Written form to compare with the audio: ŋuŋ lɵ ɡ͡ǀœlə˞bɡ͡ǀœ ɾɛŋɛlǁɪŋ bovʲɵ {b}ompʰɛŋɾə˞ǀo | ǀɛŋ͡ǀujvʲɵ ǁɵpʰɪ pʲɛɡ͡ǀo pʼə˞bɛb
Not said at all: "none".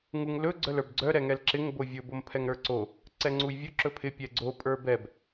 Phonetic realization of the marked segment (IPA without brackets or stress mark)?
b